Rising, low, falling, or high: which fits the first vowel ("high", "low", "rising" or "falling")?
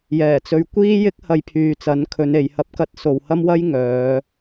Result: low